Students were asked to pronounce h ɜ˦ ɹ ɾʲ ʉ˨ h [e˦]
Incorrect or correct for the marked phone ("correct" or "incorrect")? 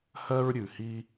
incorrect